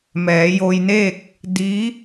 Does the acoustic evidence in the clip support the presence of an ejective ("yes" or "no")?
no